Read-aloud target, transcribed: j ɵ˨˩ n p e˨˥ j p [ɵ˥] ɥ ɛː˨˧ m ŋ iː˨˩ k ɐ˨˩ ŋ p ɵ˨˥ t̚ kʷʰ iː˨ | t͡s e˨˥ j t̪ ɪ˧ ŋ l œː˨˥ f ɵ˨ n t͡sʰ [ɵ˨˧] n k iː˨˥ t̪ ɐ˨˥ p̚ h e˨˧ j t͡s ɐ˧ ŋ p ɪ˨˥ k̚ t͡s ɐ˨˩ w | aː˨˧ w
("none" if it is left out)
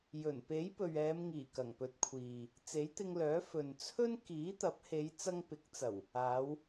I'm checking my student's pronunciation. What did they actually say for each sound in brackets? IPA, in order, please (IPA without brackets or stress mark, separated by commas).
ɵ˨, ɵ˥